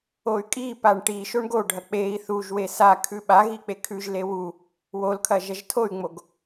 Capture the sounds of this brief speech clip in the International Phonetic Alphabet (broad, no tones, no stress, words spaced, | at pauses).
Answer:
oy̯kʼipaɳ ʈi ʃoɳɡoɖʱɐ k͡pei̯ θuʒwe sa kʰʉɓaɣi k͡pekʰʉʒle wu | wolkʰɐ ʒɐʒtʰoy̯ŋ͡moɡ